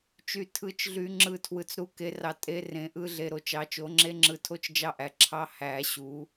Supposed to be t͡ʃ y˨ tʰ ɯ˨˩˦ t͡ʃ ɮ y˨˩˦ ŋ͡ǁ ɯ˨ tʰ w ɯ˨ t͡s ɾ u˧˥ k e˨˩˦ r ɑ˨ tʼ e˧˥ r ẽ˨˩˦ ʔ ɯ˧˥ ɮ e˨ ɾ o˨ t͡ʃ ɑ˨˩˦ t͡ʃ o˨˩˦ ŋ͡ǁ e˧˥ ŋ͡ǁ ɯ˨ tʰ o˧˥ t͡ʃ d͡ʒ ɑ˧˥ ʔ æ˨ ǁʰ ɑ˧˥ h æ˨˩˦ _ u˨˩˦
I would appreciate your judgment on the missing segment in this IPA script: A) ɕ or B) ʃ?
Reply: A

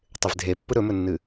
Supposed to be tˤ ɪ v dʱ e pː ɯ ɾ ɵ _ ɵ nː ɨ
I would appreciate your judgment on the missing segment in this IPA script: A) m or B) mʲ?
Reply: A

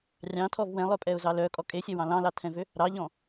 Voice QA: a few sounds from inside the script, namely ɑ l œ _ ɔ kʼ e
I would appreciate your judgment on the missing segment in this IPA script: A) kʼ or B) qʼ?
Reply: A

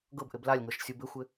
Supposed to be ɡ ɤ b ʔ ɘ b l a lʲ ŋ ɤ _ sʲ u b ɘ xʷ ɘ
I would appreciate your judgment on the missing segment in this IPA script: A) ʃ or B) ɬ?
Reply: A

